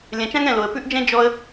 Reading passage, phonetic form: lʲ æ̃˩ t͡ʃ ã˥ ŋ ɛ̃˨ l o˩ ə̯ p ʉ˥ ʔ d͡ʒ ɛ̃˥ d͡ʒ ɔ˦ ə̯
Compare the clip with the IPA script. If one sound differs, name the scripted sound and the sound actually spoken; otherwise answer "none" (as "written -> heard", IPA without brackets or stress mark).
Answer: æ̃˩ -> ɛ̃˩